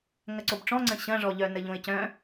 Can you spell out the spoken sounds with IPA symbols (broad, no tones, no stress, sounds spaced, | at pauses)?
ŋ ɐ ǀ o b ʈ͡ʂ ɔ̃ ŋ͡ǀ ə̃ ɕ ɐ̃ ʐ ɔ ʎ œ n ə ʎ õ ɪ̯ c œ̃